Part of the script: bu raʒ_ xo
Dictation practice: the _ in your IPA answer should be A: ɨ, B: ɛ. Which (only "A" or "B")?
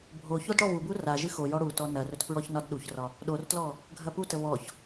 A